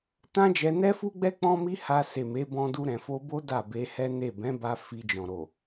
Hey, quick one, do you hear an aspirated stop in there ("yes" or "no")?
no